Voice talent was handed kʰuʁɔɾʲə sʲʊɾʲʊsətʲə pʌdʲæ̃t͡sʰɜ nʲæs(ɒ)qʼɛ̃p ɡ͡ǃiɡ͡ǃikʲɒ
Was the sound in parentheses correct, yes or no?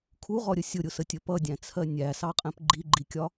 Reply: no